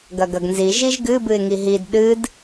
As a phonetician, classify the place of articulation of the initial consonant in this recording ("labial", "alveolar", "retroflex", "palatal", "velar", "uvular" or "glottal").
velar